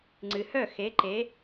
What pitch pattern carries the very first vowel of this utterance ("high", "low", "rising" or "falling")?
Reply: low